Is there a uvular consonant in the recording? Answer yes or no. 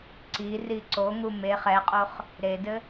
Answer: yes